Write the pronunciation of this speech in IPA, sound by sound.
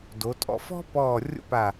d o˩˧ tʼ ɔ̰˧ f ɔ̤˥ p ɔː˧˩ rʲ o̰˥ p a˧˩

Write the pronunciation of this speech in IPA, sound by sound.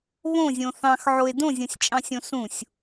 β õ zʲ õ θ ɑ̃ x ʕ o e̯ d õ zʲ õ sʲ t͡ʃʼ ɑ̃ sʲ õ s ũ sʲ

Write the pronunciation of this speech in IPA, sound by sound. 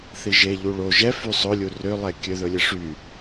θ i ʒ e ʎ u ɭ o ʒ ɛ f y sˤ ɵ lʲ u r ø lˠ ɛ kʲ ø ð ɵ lʲ ɛ ʂ y

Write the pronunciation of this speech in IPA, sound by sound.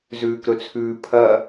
z ʉː k ɾ ɵ t͡sʰ ʉː pʰ ɐ

